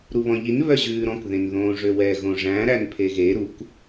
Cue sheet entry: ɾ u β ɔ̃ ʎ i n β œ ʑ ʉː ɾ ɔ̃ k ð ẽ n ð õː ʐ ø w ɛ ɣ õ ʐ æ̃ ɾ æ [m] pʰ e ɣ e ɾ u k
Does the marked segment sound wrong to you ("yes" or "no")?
yes